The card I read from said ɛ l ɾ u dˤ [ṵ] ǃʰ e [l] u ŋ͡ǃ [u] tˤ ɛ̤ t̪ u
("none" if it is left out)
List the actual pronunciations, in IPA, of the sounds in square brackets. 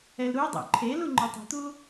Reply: ṵ, l, u

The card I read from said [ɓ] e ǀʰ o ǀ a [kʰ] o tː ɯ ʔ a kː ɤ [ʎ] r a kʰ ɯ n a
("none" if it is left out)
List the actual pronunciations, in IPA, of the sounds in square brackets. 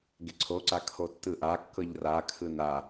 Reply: ɡ, kʰ, ʎ

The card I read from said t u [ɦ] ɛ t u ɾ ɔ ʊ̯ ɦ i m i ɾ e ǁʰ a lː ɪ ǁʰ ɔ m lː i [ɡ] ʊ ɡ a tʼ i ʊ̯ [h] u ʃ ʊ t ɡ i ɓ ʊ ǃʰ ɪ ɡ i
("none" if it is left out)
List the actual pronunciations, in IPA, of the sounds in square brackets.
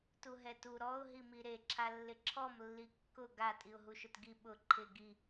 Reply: ɦ, kː, ɦ

